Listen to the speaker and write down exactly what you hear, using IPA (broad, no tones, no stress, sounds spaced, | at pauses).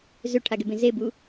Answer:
z ø ʈʰ a ɡ ɛ b ẽ z e b u